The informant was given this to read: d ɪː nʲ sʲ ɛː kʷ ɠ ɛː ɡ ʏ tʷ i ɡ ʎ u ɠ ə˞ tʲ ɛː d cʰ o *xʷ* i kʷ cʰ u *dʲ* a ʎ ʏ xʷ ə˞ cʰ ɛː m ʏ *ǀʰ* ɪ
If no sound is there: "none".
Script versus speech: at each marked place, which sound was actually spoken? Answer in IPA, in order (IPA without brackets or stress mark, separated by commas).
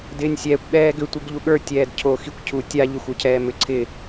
x, tʲ, ǀʰ